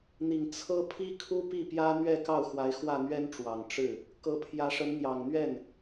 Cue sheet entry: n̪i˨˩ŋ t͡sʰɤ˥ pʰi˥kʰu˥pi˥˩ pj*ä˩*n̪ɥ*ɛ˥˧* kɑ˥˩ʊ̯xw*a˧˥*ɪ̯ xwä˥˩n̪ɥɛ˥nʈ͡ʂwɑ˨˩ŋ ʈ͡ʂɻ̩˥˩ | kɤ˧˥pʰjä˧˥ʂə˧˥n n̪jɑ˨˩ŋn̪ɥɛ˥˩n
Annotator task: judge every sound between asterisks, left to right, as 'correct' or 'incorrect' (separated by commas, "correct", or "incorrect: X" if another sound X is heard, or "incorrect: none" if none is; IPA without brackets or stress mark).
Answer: incorrect: ä˥, correct, correct